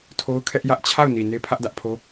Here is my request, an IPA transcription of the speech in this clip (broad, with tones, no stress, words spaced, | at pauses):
tʰo˦ʊ̯kʰɛ˦ʔjä˦ʔ t͡ɕʰa˦˨ʊ̯ni˨ ne˦pʰä˦ʔdä˦ʔpʰo˦